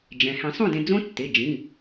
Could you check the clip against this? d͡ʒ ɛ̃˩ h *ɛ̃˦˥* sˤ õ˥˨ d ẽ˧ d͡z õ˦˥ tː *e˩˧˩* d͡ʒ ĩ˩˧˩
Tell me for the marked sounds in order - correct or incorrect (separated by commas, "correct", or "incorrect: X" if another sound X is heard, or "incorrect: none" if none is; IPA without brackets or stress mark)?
incorrect: ɛ̃˨˩˦, correct